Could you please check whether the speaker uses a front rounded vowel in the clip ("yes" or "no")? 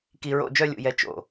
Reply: yes